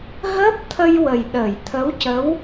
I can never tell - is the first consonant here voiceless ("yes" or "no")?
no